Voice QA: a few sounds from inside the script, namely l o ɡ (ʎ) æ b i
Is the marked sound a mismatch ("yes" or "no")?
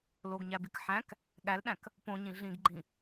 yes